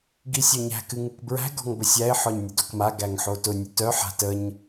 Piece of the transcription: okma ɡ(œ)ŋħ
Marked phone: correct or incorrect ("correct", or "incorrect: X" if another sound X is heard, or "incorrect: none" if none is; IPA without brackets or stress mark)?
incorrect: æ